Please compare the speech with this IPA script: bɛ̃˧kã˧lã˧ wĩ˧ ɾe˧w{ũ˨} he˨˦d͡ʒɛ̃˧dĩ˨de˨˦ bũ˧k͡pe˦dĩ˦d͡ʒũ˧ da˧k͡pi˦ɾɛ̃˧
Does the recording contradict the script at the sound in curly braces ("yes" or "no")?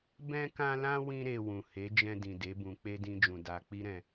no